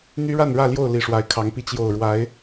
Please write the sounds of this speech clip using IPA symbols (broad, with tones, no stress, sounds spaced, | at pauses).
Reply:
n̪ y˦ ɻ a˥˨ n ɻ ä˥˨ l j o˥˨ ʊ̯ l i˨˩ ʂ w a˨˦ ɪ̯ kʰ ɑ˨˦ ŋ p i˧ t͡ɕ j o˨˩ ʊ̯ ɻ w a˨˦ ɪ̯